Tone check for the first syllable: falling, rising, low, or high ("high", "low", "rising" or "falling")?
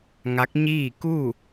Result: rising